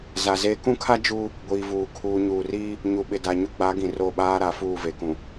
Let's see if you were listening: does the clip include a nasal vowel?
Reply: yes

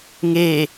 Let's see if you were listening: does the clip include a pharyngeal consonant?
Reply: no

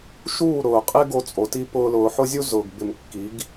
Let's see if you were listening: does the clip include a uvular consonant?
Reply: yes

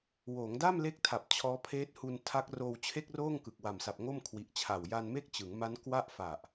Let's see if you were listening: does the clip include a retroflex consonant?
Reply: no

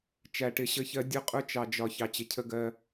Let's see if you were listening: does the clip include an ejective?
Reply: yes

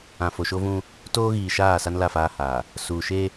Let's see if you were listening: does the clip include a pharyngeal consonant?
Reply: no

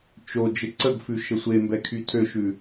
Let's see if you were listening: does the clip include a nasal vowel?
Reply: no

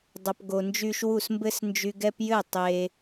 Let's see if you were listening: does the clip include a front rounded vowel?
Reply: yes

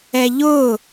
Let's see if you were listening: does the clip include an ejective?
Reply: no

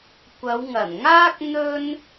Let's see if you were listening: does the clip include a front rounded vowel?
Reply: no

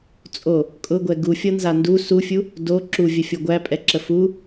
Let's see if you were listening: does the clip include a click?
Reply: yes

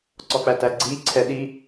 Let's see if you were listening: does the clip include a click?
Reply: yes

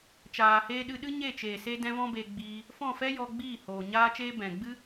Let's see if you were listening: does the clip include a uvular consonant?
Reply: no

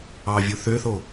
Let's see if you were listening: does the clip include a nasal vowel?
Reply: no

